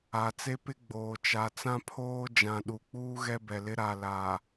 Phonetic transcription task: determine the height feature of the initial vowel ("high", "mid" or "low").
low